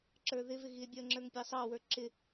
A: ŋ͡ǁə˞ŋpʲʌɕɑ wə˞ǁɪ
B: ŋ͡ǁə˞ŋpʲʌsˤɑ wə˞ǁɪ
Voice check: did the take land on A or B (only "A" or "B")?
B